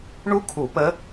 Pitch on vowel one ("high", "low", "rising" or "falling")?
high